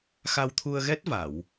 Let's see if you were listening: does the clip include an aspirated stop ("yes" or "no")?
yes